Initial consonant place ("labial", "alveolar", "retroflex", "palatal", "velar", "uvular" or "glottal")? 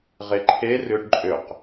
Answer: uvular